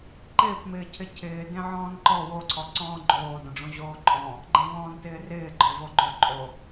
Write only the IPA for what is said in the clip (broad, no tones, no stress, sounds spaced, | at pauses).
ǃ ɪː p m ɪː cʰ ɪ cʰ ɪː d ẽ ʕ ɔ̃ː n ǃ ɔ w o ǀʰ ɔ ǀ ɔ̃ː ɡ͡ǃ oː d õ ɖ͡ʐ õ ʑ oː ǃʼ ɔ̃ | ɡ͡ǃ ẽ v ɔ̃ː n t ɪː r ɪː ɡ͡ǃ ɔ v o ɡ͡ǃ o ǃʼ o